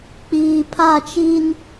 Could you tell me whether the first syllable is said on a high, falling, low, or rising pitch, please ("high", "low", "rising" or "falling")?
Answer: low